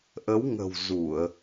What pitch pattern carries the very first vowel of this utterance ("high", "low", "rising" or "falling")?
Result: rising